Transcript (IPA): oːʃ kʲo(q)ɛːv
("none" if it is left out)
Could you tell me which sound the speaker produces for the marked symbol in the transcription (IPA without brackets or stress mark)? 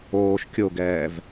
ɡ